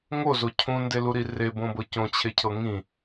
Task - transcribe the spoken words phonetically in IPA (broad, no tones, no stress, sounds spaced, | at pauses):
ŋ o z o cʰ ũ n d e l u ɾ i r e b õ b ɤ c õ t͡ɕʰ e cʰ ɤ ŋ ĩ